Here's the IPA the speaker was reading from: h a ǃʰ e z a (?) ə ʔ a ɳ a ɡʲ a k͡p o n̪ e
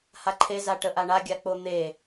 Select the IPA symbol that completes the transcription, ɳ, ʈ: ʈ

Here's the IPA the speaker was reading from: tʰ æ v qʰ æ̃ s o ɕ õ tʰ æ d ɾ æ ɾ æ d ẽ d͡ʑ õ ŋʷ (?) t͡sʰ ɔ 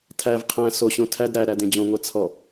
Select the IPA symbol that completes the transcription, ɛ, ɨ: ɛ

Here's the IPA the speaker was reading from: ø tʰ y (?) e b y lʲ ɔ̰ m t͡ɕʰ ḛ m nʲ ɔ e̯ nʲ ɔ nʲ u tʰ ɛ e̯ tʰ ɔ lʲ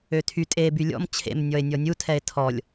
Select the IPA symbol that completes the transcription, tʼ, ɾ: tʼ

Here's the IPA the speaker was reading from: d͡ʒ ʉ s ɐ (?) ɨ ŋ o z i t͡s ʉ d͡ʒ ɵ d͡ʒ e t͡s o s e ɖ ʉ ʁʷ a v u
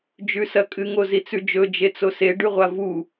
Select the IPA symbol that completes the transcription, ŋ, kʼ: kʼ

